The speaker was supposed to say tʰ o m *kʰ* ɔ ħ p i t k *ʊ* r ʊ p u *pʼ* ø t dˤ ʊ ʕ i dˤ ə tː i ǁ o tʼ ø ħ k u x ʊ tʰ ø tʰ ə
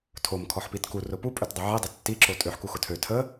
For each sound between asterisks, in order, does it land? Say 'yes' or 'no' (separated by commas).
yes, no, yes